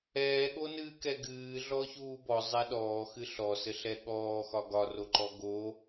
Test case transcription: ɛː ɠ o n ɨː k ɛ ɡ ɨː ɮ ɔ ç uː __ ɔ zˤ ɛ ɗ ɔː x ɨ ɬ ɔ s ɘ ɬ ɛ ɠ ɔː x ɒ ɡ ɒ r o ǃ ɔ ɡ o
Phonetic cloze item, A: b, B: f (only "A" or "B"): A